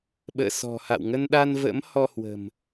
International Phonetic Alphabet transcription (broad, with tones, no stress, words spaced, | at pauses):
ɓə̰ː˧˨sɔ̤˨˩ha̰˧˨w ŋə˧nɗa˧nvə̰˧˥m hɔ˧ hwə̤˨˩m